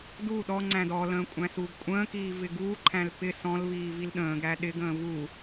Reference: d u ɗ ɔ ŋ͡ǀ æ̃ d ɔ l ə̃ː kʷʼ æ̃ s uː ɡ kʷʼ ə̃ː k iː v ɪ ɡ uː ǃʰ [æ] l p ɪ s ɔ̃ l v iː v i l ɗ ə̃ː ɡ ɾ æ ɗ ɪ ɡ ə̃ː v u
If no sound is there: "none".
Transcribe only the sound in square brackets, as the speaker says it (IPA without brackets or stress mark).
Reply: æ̃